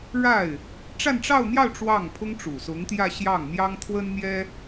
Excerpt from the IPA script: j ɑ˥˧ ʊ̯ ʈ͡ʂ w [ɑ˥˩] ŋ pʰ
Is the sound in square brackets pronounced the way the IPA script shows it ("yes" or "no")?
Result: yes